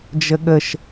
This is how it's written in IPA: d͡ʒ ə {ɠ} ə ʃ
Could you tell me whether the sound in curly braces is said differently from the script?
no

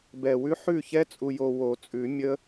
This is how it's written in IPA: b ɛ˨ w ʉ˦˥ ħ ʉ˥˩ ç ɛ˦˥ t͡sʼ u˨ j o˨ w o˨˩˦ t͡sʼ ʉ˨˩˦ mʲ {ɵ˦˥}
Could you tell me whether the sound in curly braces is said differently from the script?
yes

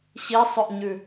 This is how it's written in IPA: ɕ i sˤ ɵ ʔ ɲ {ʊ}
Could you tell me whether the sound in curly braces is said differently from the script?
yes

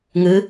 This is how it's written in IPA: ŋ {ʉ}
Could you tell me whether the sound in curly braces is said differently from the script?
yes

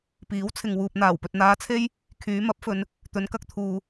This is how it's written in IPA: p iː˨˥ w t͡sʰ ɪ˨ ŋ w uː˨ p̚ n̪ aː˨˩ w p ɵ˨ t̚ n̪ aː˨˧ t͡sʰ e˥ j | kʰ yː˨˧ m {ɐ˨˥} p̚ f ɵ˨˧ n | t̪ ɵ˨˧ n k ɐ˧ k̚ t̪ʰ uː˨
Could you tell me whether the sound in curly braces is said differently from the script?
no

